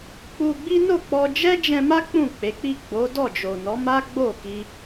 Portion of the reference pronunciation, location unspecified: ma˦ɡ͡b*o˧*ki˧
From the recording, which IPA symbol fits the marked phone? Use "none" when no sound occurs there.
o˦˨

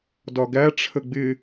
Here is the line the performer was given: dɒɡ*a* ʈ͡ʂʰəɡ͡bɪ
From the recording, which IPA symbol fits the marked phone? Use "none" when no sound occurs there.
æ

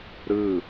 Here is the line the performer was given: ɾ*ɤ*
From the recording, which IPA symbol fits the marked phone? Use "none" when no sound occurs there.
ɯ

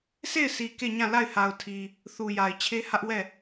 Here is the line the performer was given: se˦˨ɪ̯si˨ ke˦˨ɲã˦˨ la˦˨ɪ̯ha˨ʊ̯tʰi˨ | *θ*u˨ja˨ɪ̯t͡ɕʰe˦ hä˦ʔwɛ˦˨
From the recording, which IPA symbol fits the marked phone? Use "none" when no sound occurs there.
θ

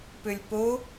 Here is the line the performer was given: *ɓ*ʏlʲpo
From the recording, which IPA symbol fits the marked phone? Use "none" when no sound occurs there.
p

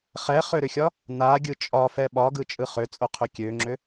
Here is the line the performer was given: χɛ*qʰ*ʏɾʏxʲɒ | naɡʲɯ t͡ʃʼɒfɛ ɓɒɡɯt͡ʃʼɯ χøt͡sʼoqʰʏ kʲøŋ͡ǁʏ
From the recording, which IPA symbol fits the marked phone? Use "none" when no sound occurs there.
χ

